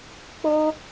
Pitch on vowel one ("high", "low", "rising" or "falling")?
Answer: high